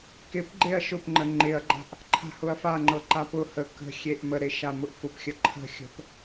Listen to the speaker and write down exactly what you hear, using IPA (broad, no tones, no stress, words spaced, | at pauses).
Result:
kɪpɡ͡ǃeɐ̯ ʃʊpŋ͡ǃə ŋ͡ǃɪɐ̯ɡ͡ǃa̤ʔ | ǃʰa̤hʊɐ̯faŋ͡ǃɤ ǃapʊhə kə̤ xʲeʔməɾe ʃamʊʔfʊpxʲə ǃʰə̤xʲə̤p